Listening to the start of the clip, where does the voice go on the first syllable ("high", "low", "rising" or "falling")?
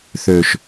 low